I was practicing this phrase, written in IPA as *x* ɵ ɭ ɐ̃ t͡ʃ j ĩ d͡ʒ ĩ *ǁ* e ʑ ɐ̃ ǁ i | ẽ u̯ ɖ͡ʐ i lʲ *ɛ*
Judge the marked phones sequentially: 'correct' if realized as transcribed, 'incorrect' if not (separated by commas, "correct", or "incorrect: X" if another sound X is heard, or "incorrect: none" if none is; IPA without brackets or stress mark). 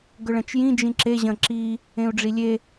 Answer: incorrect: ɡ, correct, incorrect: e